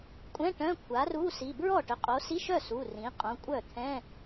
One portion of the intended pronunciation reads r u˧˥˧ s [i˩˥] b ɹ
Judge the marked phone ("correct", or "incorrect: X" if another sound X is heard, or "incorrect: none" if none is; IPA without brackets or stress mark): incorrect: i˩˧˩